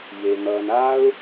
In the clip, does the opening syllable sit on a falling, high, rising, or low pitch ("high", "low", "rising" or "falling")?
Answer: low